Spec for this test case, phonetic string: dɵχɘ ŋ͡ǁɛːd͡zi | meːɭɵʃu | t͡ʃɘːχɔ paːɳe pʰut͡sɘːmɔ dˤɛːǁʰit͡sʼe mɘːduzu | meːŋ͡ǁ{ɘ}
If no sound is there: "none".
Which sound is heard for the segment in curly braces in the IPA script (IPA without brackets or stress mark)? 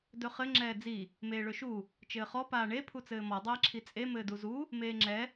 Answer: ɛ